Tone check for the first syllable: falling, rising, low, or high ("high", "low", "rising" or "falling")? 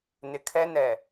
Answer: low